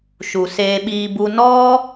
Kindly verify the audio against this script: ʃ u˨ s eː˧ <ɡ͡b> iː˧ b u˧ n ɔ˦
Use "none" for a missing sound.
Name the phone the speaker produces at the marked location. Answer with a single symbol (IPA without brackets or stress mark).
ɓ